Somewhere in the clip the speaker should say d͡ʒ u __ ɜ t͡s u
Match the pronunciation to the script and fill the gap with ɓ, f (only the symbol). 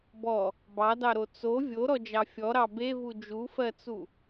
f